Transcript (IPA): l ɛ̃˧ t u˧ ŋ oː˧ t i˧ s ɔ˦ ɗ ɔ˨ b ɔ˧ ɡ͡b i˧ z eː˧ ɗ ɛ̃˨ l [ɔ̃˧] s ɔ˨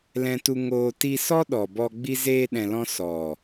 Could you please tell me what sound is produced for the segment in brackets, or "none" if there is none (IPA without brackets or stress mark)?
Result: ɔ̃˧